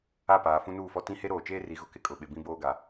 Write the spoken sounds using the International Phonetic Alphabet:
a˦˨ p aː˨ f ũ˦ n uː˦˨ f ɔ˦ t ĩ˦ h e˦ ɾ oː˨ t͡ʃ eː˦ r i˨ ɣ ʊ˦ k ɪ˦ kʼ ʊ˨ ɓ ɪ˨ b ĩ˦ b oː˦ ɡ a˨

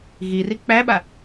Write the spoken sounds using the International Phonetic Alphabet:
ɣ i r i k͡p æ ɓ a

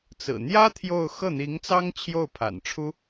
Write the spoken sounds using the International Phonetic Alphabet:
t͡s ɹ̩˨˩ n̪ j ä˥ t̪ʰ j o˥˧ ʊ̯ x ɤ˥˩ n̪ i˧˥ ŋ t͡s ɑ˥ ŋ t͡ɕʰ j o˥˩ ʊ̯ pʰ a̰˨˩ n ʈ͡ʂʰ u˥

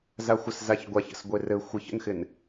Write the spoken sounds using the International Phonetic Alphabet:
z a xʷ ə s z a ç ɡʷ a ç ə̰ s ɡʷ ɪ r ɘ xʷ ɪ ç ə̰ n x ɪ n

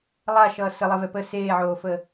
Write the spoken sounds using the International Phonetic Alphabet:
lˠ a ʃ ʌː s ə lˠ ɛ v ɛ p ə s eː ʕ oː f ə

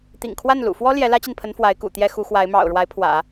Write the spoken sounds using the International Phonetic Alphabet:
t̪ ḭ˨˩ ŋ kʰ w a˥˩ n l ṵ˨˩ f w ɔ˥ l j ɛ˧˥ l ä˥ t͡ɕ i˨ n pʰ ə˧˥ n f w a˧˥ ɪ̯ k ṵ˨˩ t̪ j ɛ˥ x u˧˥ x w a˧˥ ɪ̯ m ɑ̰˨˩ ʊ̯ ɻ w a˧˥ ɪ̯ pʰ w ä̰˨˩˦

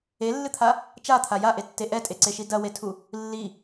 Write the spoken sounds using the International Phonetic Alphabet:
e lː ɨ t̪ʰ a | t͡ʃ a t̪ʰ a j a ʔ e tː e ʔ ɛ tʼ e ǀ e ʃ i d ɐ w e tʰ u | lː i

